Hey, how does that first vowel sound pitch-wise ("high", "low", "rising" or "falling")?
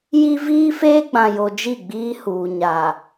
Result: high